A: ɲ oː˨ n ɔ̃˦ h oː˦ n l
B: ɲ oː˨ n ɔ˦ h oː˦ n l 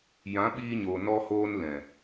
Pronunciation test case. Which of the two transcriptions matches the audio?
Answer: B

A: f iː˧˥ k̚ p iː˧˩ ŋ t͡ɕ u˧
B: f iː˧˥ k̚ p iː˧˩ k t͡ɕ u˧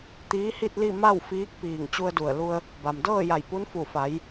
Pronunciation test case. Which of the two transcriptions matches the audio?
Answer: A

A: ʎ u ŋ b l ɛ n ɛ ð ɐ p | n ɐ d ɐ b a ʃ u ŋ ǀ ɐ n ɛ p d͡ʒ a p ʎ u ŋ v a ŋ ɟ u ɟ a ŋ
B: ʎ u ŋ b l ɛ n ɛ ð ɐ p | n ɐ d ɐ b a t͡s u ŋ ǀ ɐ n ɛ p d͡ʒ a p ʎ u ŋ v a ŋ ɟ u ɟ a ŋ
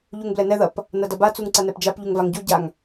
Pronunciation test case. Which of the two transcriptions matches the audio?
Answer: B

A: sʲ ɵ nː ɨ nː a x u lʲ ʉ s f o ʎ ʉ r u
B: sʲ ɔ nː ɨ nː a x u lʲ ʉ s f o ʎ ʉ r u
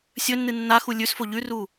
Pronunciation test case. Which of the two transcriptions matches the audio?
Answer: A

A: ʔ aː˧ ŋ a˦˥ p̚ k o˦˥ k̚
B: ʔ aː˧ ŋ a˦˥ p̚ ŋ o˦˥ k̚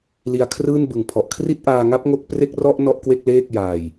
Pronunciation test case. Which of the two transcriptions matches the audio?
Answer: B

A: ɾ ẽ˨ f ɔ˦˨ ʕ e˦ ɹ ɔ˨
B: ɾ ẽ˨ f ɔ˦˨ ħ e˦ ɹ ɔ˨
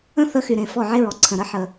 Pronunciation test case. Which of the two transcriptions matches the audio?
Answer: A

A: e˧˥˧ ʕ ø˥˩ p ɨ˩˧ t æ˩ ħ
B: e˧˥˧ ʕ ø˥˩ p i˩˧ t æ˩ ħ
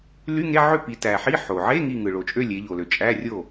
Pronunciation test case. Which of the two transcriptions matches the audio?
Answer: B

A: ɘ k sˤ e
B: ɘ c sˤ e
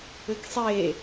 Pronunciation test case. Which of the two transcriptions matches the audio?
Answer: A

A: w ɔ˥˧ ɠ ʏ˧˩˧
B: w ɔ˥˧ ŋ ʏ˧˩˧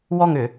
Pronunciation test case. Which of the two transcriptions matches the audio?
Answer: B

